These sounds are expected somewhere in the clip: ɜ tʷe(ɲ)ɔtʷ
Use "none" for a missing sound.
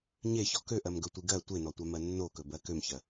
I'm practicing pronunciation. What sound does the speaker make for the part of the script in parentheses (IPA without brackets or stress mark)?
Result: n